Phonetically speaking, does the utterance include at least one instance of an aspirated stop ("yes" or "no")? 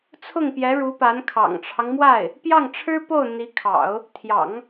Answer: yes